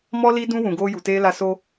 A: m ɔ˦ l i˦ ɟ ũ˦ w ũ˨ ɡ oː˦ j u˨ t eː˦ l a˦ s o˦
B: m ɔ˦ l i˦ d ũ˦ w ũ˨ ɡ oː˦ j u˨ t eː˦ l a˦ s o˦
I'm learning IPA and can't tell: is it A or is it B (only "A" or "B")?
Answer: B